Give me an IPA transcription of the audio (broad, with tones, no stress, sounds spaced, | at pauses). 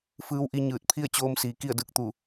f ɯː˧˥ w ʔ i˧ ɲ ɯː˧˩ t̚ pʰ i˥˨ ə̯ t͡ɕ oː˧ m s iː˩ k i˥˨ ə̯ d ɯː˧ k̚ t̪ u˧˩